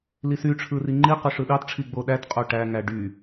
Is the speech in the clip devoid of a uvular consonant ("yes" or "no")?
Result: no